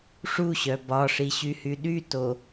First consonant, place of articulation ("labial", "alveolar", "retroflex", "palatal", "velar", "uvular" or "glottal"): retroflex